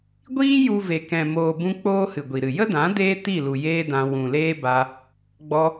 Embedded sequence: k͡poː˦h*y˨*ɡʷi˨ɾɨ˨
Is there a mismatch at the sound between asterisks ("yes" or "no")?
yes